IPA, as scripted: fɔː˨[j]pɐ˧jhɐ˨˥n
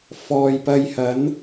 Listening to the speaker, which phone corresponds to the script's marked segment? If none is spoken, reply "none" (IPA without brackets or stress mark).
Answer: j